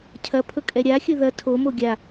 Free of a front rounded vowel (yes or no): yes